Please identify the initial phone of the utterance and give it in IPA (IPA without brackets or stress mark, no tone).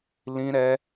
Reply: l